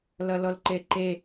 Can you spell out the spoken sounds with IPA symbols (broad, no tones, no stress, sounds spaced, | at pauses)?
l ʌ l ɔ l ǃ e ǃ e